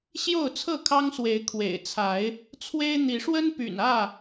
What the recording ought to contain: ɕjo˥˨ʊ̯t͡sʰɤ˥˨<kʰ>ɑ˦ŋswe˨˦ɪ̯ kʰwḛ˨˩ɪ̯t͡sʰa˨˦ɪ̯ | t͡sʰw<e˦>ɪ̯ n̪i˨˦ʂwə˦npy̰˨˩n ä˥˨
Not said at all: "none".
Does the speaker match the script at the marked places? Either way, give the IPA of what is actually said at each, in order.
kʰ, e˦

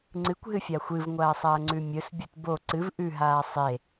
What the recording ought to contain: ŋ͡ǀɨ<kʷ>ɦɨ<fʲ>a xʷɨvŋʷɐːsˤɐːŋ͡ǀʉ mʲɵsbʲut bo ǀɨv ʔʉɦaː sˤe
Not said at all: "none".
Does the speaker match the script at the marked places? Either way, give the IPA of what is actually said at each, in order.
kʷ, fʲ

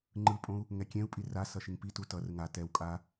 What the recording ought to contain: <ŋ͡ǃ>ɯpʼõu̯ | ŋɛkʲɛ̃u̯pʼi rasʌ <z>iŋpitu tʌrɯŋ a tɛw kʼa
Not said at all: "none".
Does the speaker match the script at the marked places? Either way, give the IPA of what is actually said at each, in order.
ŋ͡ǃ, ʃ

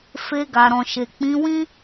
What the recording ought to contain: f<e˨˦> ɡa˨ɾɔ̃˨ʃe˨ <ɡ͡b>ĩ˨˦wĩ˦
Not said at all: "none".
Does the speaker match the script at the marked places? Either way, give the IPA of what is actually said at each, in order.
e˧, k͡p

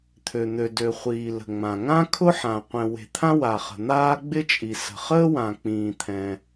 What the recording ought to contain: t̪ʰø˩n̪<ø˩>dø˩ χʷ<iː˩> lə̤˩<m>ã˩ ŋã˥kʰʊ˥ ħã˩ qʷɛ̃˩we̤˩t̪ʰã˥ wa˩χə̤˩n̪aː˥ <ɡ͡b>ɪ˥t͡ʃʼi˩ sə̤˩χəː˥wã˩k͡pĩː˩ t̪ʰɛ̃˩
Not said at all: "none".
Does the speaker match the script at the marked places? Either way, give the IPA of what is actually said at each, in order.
ø˩, iː˩, ŋ͡m, ɡ͡b

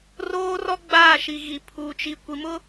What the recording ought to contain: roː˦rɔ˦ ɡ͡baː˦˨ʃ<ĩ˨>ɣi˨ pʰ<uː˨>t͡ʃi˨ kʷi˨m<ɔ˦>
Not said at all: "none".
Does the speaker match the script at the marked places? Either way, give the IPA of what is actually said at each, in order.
i˨, uː˨, ʊ˦

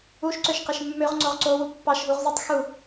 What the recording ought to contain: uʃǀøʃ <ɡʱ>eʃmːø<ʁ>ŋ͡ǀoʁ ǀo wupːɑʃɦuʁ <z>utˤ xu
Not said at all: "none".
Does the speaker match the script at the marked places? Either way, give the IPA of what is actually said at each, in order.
q, ʁ, z

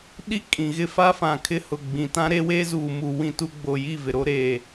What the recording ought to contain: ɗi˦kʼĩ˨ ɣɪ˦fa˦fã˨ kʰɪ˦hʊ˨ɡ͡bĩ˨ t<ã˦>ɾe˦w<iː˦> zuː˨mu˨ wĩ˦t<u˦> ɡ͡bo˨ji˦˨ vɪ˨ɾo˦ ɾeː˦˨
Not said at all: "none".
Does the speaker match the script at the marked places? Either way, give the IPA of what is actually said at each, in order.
ã˦, eː˦, u˦

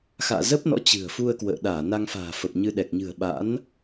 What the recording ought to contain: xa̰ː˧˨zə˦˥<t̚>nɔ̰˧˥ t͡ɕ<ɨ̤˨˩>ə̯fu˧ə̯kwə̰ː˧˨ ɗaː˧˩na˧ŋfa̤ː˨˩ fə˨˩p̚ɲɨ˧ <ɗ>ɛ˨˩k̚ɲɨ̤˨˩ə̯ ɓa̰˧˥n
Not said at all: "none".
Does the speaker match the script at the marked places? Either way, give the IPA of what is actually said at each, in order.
p̚, ɨ̤˨˩, ɗ

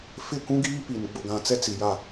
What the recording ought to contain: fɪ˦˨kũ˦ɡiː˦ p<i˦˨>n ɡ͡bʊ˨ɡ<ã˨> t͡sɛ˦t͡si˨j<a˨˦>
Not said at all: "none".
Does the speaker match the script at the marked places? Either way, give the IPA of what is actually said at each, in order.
i˨, ã˨, a˦˨

